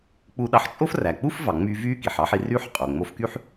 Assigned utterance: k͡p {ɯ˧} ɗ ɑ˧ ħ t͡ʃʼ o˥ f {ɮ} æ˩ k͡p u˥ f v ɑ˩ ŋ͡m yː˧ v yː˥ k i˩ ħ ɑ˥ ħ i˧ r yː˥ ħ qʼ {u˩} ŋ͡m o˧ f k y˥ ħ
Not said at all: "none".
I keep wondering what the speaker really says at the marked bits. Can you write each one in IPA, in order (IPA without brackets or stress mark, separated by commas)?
u˧, r, o˩